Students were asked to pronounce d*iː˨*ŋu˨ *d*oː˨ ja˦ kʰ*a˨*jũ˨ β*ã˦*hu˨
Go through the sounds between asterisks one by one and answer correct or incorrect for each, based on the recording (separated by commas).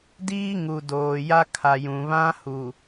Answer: incorrect, correct, correct, correct